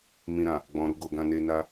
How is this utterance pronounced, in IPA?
mĩ˨ɾã˨ | ɡ͡bɔ̃˨ ɾu˧ɡo˨ɡã˧ne˧ na˧

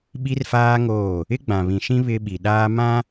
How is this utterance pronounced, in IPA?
ɓi˦rfaː˦ŋoː˦˨ | ɪ˦ɡ͡bã˨βĩ˨ʃĩ˦ βɪ˦ɓi˨ ɗaː˦mã˦

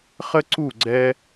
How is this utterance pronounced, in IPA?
χə˥ǀu˥˩ ɡ͡ǀɛ˥

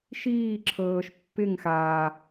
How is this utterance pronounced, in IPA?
ʃiːǁʰɤːʃ pːɪŋ xa

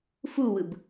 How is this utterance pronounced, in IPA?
fuwɯb

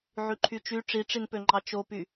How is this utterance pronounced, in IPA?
ʕyǃʰyt͡ʃy ʈ͡ʂiʈ͡ʂinpø ŋ͡ǃɑt͡ʃopy

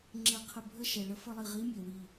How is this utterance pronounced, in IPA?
ŋ͡ǁe˧qʰə˧˩bʱə˥˧ ʃɛ˩ɭə˧ fə˥˧lˠi˧˩ ʁi˧˥mʲø˩ wi˧˩

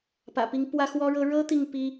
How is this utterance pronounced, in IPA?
pä̰˨˩pi˧˥ŋ pwä˥ xwɔ˥ɻɤ˥ ɻɤ˥ t̪i˥˩ŋpi˥

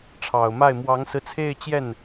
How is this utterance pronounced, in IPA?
ʈ͡ʂʰɑ˨˩ʊ̯ma˥˩ɪ̯ mwɑ˧˥ŋsɹ̩˧t͡sʰe˥˧ɪ̯ t͡ɕjɛ˥˩n

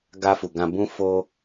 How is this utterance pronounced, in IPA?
ɡa˧fu˨ɡã˧ bũ˦fo˦

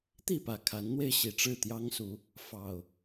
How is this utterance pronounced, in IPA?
t̪i˥˨pä˨˩kʰa˨˦nn̪we˧ɪ̯ ɕi˨˩ʈ͡ʂɻ̩˥˨t̪jɑ˦ŋsu˨˦ | fɑ˨˩ʊ̯

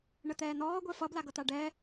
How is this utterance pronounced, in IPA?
ɳət̪ɛːnɔː ɡʷɛfʌ blaɡʌt̪aɖɛː

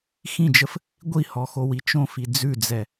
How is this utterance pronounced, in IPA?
xĩd͡ʒəf | ɡʷihɔxowi t͡ʃõfi d͡zʉd͡zɛ

